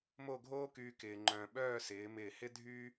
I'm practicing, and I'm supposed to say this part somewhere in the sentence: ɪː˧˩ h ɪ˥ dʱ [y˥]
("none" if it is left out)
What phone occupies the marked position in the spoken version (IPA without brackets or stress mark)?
y˥